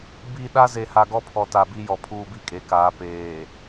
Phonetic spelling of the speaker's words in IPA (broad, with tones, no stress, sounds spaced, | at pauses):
b i˨ ɗ a˦ z e˨ h a˨ ɡ ɔ˦ pʰ ɔ˨ t a˨ b i˦ j ɔ˨ pʰ uː˦ b i˦ kʼ e˨˦ k aː˨˦ p eː˨